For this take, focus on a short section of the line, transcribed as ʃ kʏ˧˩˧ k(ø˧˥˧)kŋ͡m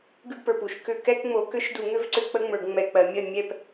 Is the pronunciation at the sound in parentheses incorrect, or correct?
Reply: incorrect